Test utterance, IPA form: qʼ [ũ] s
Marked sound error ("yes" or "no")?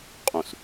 no